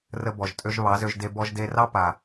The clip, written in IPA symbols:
rə˧bɔ˨ʒ tʼø˧ʒ βɑ˨˦zø˧ʒde˧ bɔ˧ʒ de˧rɑ˦ pa˨

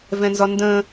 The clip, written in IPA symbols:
vɛ̃nzɒndə̃ː

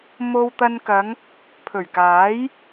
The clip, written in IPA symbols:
mo˧wt̪ɐ˧nkɐ˨˧ŋ | pʰɵ˨˩ɥkaː˨˥j

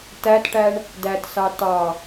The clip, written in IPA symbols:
tætʈæɳ | dætsɑ tɑ

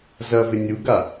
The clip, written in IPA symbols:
zɐvɪ nʲuɡa

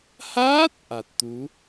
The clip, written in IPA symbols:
haː˦˥t̚ ʔa˨˩t̚t̪u˨˦

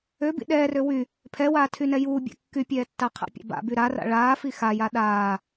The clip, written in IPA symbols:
øbḭ ɗɛːrø wy | pʰɛwaːtʰynɛ juːbʲa̰ kːypʲɛːtːa qʰa̰pʲa̰ba̰by ɾara̰ ɭaːfi xaja ɗaː

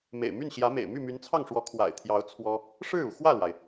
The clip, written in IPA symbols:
mḛ˨˩ɪ̯my˥˩nɕjä˧˥mḛ˨˩ɪ̯ my˥˩my˧˥nt͡sʰɑ˥˩ŋʂwɔ˧˥ kʰwa̰˨˩ɪ̯t̪ʰjɑ˧˥ʊ̯ t͡sʰwɔ˥ | ʂɻ̩˥˩u˩ xwä˥˩lwa˩ɪ̯

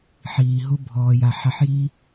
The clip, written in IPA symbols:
ħiː˨ɦu˦ bʱɔː˨ja˨ħa˧ħji˦

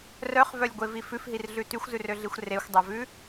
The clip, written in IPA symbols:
rœχvœlʲɡʷevi fʉfɦirɮʉ tyxʷzʉrøɮixʷ rexʷdˤøvʉ

